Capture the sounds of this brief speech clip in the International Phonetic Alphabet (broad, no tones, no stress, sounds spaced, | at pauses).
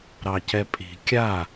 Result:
ɾ ɑ c ɛ pʼ i̤ kʲ a